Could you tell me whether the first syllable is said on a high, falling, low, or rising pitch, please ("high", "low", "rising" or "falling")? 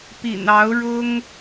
low